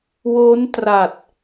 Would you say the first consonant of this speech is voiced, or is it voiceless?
voiced